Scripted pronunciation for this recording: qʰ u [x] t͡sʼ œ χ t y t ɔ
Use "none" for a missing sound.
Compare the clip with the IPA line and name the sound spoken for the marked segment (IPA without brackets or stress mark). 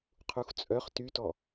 x